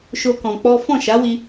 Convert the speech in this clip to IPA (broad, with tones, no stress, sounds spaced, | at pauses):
ʃ o˦ k ɔ̃˧ k͡p ɔ˦ f ɔ̃˦˨ ʃ a˨˦ w i˧